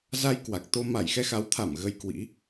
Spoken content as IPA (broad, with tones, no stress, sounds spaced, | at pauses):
z a˧ j k w a˨˩ k̚ t̪ o˧ m a˧˩ j x ɛ˧ x a˨˦ w t̪ʰ a˧˩ m ɣ ə˧ j k w ḭ˧˥